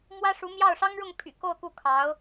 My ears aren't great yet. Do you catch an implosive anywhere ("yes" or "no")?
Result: no